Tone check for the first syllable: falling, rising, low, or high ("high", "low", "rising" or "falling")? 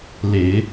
low